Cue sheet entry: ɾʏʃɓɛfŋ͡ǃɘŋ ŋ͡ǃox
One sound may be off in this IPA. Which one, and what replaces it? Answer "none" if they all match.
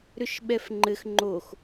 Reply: ŋ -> x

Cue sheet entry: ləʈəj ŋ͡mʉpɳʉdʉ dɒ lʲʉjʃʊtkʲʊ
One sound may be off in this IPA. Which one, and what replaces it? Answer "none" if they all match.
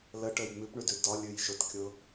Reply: none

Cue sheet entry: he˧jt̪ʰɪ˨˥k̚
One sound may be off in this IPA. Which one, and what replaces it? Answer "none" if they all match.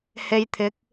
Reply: none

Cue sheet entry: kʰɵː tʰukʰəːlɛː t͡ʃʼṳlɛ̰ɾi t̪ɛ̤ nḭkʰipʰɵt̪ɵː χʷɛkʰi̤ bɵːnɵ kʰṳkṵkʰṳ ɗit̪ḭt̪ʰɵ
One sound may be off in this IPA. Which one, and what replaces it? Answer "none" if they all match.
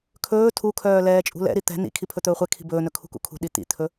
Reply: əː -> œː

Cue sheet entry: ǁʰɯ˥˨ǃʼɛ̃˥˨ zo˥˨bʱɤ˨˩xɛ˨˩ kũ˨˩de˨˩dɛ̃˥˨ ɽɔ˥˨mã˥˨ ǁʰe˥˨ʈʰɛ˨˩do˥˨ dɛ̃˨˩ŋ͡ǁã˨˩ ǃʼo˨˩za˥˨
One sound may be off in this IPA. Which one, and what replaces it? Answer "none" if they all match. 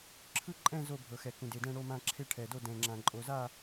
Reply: ɔ˥˨ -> o˥˨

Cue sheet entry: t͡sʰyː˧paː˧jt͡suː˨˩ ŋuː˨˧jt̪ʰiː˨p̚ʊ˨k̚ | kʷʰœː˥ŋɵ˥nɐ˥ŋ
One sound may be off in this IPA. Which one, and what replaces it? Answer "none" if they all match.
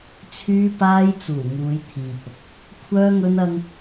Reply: none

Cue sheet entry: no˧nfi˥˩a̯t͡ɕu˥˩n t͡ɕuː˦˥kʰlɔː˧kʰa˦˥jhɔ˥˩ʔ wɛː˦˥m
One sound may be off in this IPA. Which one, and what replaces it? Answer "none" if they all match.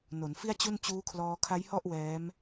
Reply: o˧ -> o˩˦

